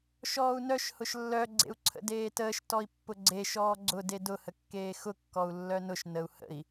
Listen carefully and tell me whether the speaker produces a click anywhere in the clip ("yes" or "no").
yes